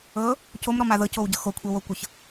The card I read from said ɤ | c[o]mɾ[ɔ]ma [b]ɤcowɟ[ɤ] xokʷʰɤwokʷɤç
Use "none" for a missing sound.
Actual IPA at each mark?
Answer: o, ɔ, ð, ɤ

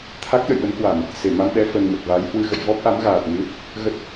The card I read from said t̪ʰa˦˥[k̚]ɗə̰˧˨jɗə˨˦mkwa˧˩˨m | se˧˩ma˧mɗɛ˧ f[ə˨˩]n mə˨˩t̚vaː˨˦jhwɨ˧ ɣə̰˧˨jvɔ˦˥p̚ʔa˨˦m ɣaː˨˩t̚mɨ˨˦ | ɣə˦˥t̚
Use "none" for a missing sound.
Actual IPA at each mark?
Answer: k̚, ə˨˩

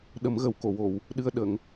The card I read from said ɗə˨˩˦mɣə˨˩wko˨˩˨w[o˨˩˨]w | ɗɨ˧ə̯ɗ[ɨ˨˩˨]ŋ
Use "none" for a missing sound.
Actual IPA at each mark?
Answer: o˨˩˨, ə˨˩˨

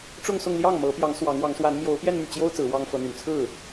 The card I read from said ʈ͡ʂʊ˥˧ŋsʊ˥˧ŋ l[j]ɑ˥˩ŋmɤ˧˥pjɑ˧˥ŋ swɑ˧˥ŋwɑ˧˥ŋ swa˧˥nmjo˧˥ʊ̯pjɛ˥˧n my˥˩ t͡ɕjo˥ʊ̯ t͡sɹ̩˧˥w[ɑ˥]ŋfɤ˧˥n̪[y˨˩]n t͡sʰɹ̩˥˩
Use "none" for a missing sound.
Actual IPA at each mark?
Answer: j, ɑ˥, y˨˩

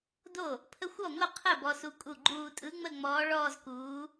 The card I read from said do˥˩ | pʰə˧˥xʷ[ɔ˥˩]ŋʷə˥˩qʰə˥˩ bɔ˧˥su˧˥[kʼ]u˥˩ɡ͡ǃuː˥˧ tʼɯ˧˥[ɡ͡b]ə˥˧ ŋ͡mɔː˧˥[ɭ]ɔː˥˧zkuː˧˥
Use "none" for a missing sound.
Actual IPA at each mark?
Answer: ɔ˥˩, kʼ, ŋ͡m, ɭ

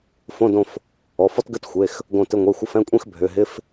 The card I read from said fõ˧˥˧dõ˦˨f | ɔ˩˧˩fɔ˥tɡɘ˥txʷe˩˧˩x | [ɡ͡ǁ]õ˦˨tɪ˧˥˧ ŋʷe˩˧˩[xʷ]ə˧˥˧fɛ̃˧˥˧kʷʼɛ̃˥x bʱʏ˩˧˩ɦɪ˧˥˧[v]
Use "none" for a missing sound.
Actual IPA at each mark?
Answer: ɡ, xʷ, f

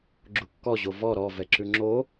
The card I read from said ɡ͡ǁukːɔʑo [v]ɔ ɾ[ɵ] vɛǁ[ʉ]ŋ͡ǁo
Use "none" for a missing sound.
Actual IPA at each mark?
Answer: v, ɔ, ʉ

